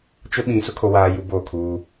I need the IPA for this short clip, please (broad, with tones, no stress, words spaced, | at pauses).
t͡ʃʊ˦ɓĩ˨ sʊ˦kʰo˨waː˨ ju˦boː˦˨kʰuː˦